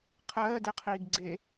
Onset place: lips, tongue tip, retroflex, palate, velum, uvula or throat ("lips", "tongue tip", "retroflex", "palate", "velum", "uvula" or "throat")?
uvula